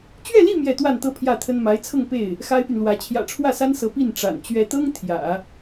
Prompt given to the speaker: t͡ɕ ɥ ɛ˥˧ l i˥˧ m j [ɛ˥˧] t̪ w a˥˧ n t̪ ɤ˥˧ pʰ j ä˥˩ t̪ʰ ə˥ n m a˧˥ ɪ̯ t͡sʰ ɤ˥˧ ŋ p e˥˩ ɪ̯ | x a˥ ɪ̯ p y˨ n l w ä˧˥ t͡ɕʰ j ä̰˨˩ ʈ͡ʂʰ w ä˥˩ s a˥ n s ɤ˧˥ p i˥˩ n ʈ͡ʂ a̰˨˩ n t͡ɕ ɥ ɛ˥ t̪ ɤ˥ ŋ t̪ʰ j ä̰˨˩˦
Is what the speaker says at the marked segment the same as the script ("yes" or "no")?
yes